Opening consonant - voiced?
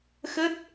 no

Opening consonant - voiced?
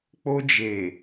no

